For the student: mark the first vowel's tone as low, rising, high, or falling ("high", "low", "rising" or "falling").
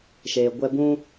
low